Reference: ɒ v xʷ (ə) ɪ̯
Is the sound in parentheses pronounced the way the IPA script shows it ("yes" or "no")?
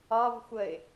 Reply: yes